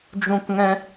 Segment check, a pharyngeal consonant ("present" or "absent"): absent